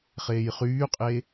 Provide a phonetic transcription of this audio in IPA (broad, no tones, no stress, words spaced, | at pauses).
χeːjχyːqʼe